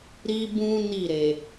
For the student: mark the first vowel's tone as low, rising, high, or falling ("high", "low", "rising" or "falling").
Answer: high